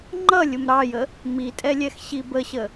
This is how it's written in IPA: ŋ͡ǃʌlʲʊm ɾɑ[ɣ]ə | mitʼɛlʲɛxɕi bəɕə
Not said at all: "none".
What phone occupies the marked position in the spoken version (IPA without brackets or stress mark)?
j